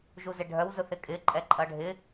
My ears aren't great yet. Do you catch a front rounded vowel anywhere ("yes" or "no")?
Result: yes